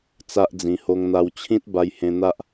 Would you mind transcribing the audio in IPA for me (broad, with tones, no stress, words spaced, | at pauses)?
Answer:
t͡sa˦ʔd͡zĩ˧ ho˧ŋn̪a˧wt͡ɕʰĩ˦t̚ ba˧jhẽ˧n̪a˦ʔ